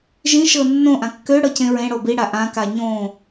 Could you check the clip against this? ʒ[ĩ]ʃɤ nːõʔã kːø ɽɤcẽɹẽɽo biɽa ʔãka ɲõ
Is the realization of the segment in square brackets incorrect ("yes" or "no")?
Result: no